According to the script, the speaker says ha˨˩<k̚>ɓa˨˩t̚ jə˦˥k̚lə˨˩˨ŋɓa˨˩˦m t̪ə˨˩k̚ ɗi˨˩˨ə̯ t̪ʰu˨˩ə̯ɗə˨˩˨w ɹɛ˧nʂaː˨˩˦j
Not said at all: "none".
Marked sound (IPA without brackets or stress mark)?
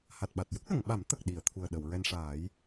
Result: t̚